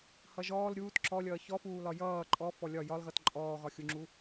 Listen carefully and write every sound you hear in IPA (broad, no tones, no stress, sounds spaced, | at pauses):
h ʌ ʒ ɔː l ɾʲ uː t ǁ ɔ lʲ ʌː ç ɔ f uː l ɒ j ʌː ǃʼ ɔ f ɔ lʲ ɒ j ɒ l ɣ ʌ t ǃʼ ɔː ɣ ɒ xʲ u ŋ͡ǁ u